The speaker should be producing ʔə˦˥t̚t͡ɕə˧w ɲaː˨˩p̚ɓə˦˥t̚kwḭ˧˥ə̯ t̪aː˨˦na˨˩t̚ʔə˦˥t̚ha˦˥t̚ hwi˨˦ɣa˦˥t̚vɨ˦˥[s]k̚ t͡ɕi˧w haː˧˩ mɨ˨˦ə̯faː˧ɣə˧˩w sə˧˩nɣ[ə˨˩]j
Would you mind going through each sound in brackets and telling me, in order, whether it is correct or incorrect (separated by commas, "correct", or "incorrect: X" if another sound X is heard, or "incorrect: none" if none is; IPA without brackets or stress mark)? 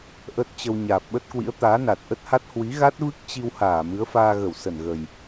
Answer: incorrect: none, correct